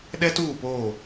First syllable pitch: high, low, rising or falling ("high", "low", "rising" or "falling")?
high